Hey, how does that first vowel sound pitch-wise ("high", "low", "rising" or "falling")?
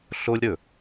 high